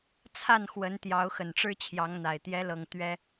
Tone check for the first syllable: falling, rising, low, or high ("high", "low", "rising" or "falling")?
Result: falling